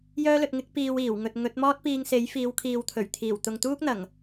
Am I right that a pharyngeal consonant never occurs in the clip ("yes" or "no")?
yes